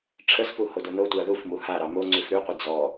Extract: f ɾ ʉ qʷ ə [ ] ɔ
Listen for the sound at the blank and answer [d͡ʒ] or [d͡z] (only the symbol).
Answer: d͡z